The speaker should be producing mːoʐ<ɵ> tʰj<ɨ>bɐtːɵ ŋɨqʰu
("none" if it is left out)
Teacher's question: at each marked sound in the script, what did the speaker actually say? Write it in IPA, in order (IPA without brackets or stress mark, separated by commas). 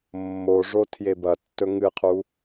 o, e